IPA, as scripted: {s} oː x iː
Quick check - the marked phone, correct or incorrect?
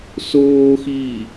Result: correct